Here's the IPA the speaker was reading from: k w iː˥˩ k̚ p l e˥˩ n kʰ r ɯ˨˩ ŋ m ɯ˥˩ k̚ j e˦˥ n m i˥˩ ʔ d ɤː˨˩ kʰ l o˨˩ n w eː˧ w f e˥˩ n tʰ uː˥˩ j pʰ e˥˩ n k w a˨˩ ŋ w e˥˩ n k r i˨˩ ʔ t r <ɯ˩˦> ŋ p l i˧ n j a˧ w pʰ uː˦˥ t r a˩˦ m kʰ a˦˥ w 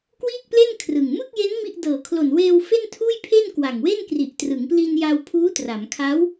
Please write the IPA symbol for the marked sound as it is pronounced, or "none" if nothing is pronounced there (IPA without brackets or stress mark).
ɯ˩˦